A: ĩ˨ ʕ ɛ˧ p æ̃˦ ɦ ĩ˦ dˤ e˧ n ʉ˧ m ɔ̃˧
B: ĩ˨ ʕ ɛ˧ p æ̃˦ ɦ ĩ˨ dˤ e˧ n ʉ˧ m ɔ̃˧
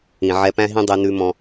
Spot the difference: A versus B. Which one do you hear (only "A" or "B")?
A